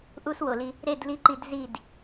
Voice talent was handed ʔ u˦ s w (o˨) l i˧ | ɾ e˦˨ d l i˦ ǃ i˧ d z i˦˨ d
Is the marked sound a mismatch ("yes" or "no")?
no